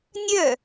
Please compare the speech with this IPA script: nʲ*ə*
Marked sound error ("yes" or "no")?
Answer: yes